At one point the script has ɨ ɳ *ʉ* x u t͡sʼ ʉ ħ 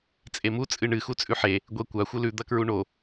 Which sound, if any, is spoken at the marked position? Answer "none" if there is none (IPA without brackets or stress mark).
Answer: ɨ